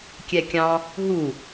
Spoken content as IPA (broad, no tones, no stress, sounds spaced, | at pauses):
kʲ ɛ kʲ ɑ̃ | ɦ u